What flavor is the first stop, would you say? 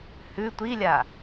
plain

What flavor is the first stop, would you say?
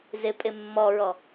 ejective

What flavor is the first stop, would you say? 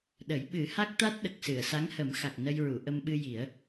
implosive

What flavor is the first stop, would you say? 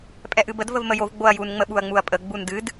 ejective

